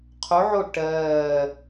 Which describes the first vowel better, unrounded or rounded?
rounded